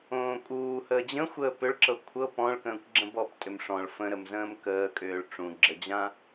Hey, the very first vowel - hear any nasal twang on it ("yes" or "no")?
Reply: yes